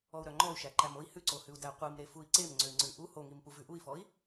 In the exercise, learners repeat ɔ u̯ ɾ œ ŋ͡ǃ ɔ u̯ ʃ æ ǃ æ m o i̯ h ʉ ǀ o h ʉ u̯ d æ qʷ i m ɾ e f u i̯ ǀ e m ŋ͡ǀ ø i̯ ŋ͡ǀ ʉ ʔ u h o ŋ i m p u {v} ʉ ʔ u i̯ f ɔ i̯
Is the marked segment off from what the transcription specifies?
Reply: no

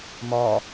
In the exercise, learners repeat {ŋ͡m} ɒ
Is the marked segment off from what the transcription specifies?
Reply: yes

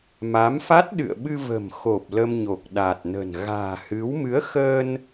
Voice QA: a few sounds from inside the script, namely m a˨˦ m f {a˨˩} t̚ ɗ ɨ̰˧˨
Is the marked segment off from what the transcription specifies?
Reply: yes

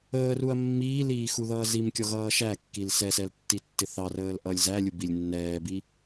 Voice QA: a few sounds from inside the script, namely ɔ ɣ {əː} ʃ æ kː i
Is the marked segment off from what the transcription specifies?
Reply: yes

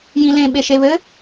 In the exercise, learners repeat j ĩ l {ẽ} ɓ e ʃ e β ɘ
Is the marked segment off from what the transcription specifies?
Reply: no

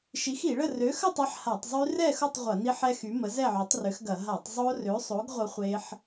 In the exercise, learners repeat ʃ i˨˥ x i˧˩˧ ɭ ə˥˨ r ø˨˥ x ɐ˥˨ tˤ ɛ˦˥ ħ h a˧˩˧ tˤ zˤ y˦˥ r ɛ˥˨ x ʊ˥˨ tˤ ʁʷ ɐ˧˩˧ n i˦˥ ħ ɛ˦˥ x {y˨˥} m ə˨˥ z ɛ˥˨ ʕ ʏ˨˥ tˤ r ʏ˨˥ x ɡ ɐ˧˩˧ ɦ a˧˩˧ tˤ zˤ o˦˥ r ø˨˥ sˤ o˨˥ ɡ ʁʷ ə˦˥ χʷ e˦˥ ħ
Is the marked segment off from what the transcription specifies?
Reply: no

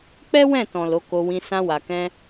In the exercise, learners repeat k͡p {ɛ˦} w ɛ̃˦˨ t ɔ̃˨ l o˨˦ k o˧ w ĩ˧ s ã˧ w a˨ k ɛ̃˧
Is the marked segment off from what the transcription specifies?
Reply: no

